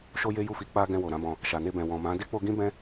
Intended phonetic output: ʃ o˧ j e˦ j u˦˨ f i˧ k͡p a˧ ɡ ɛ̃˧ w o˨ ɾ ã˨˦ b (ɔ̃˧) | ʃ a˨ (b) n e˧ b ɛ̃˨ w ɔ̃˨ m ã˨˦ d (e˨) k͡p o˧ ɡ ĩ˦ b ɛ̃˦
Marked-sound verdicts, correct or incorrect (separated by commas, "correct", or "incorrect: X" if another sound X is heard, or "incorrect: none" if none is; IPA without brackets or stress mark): correct, incorrect: none, incorrect: e˦